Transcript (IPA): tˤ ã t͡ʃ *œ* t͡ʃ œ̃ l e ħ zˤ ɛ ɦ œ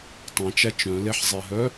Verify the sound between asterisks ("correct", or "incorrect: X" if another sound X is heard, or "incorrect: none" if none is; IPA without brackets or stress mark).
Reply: incorrect: æ